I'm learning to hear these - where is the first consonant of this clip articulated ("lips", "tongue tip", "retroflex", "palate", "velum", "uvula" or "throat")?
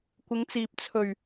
velum